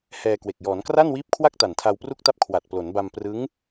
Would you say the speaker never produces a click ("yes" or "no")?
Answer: yes